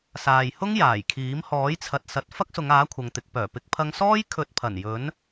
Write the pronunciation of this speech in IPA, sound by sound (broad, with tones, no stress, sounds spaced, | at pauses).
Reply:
s aː˨ j h ʊ˥ ŋ j aː˨˩ j kʰ iː˨˥ m h ɔː˨˥ j t͡sʰ ɐ˨ t̚ s ɐ˨˥ t̚ f ɐ˥ k̚ s ʊ˨˧ ŋ aː˨˥ kʷʰ ɐ˨˧ ŋ t̪ ɪ˨˥ k̚ p œː˨˩ p ɪ˨˥ k̚ pʰ ɐ˧ ŋ s ɔː˥ j kʰ ɵ˨˥ t̚ pʰ ɐ˨˩ n j ɵ˨˥ n